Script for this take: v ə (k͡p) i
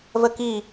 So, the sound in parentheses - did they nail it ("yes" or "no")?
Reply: no